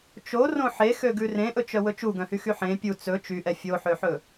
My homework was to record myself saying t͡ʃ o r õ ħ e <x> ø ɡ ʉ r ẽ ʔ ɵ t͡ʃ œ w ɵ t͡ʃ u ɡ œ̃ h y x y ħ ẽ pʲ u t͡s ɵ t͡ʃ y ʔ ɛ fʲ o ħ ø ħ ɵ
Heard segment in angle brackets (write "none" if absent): x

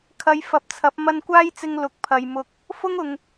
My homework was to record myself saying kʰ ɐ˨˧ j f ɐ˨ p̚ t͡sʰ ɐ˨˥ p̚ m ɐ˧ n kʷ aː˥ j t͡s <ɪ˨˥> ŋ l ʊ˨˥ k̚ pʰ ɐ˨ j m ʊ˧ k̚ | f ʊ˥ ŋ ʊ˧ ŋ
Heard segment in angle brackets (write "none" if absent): ɪ˧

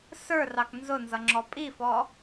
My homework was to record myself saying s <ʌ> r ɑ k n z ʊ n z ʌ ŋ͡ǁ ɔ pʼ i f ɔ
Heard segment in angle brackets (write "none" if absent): ə˞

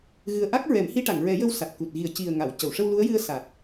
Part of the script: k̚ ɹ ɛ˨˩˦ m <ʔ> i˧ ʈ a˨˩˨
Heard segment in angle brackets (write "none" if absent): h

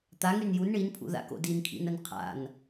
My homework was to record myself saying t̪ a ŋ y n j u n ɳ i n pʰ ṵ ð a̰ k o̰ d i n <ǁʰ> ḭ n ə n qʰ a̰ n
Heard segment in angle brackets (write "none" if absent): kʰ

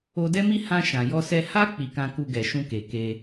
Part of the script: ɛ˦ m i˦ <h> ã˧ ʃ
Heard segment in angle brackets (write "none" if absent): h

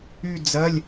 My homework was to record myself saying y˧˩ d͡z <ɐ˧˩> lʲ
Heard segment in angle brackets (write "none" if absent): ɐ˩˧˩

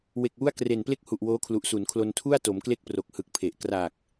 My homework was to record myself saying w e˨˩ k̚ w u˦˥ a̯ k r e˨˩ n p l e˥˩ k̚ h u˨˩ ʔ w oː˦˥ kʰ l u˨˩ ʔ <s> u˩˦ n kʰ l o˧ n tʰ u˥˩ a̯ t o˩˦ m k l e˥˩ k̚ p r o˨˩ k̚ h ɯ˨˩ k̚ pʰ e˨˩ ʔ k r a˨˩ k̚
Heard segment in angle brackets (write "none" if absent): s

